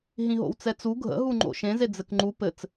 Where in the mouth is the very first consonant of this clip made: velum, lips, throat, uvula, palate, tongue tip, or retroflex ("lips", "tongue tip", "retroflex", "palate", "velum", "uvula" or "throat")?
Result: throat